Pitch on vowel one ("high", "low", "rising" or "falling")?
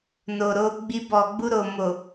low